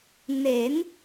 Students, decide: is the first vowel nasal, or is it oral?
oral